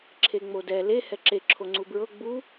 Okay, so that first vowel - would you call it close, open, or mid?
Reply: mid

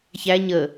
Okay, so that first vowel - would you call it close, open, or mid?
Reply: open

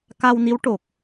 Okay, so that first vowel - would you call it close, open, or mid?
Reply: open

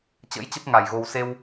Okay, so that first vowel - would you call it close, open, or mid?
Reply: mid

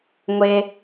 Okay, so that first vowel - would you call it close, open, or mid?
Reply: mid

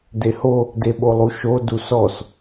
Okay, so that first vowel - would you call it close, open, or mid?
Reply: mid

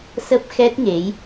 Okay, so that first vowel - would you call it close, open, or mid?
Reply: mid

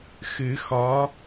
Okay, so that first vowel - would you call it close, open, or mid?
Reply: close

